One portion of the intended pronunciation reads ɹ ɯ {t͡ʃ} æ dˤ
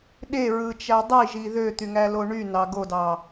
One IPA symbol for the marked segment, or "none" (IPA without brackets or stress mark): t͡ʃ